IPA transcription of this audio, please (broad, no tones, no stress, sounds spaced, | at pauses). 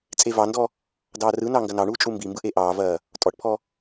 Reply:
t͡sʼ e v ɑ n d ɔ | d ɑː r ɯ n ɑ ŋ ɡ ɐ n ɑ ɳ uː t͡ʃʼ u m b i m b ɯ ʔ e ʔ ɑː v ɐː | tʼ ɔ ʈ pʰ ɔ